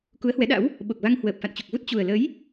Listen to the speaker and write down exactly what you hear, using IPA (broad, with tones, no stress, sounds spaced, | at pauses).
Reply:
k u˨˦ ə̯ h w ɛ˨˦ ɗ a̰˧˥ w | ɓ o˨˩ k̚ v a˧ ŋ h w əː˨˩ p̚ f a̰˧˨ n t͡ɕ u˨˩ k̚ v u˦˥ t̚ t͡ɕ u˨˩ ə̯ l ə˨˦ j